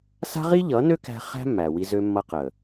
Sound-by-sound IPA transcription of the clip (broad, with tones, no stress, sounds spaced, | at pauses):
s a̤˦ ʁ i˦ ʎ ʌ˨˦ n ø˦ k æ̤˧ χ æ̤˦ mː æ˨ w i˧ z ø˧ mː ʌ˧ q ə˨